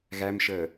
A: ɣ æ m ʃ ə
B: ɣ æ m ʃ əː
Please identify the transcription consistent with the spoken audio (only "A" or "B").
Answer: B